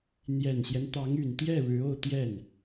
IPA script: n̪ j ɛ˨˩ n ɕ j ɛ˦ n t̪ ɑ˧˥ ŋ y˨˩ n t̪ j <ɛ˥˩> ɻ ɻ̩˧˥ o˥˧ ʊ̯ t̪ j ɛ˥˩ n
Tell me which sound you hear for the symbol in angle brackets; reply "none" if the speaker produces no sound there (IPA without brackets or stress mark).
ɛ˥˩